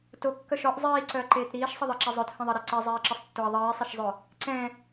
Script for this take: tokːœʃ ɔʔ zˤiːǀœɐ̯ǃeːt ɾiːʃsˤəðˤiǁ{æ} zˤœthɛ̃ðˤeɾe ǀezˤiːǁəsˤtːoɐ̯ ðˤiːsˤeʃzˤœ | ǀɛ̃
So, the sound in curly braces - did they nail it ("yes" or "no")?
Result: no